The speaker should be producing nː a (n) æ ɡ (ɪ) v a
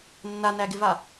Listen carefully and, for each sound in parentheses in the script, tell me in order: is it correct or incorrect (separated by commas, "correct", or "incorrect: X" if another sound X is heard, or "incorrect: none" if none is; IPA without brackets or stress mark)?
correct, correct